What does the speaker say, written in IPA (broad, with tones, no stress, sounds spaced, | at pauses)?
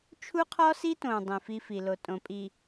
t͡ʃʰ u˦ qʰ ɔ˦ s i˦ t õ˨ dˤ ĩ˨ f i˦ f i˨ l o˨ tʼ õ˨ pʼ i˨